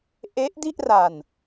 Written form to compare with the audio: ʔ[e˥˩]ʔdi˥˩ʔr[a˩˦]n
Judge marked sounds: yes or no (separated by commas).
no, no